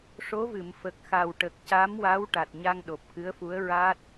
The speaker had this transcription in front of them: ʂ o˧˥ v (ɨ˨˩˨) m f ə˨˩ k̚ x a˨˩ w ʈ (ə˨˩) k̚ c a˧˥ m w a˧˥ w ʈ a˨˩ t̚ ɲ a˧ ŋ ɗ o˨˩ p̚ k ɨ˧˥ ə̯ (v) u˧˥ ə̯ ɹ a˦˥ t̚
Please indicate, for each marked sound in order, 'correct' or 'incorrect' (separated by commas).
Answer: correct, correct, incorrect